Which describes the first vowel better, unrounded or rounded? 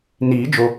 unrounded